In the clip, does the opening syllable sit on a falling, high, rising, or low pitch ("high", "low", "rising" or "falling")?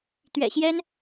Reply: low